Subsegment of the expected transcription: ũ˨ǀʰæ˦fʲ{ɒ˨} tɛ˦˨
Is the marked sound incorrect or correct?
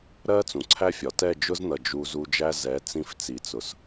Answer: correct